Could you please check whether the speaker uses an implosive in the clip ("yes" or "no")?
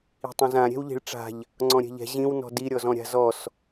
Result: no